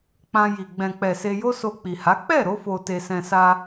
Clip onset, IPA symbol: k͡p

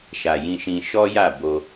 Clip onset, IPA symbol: ʃ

